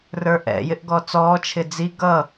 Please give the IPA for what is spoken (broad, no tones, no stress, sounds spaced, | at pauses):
r ə˞ ʔ ɛ̰ j ɪ ʔ ɡ ɔ t͡s ɔː t͡ʃʰ ɪ d͡z i ɡ ʌ